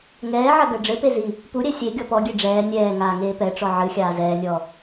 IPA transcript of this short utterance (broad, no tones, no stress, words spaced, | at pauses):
ŋɛːʕɐ ɡɐɖ͡ʐɘpe zi | puɾʲɛ sʲe ɡʲɔpɔɡʲe ɖ͡ʐɛː nʲɛː ŋaːŋeːpɛʈ͡ʂɔ ʕɨxʲaː zɛːnʲɔː